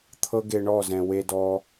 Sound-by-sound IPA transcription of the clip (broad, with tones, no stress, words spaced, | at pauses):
t̪ʰɤ˦ɡe˧ɳɔ˦˨zɛ̃˨ we˧ dɔ˦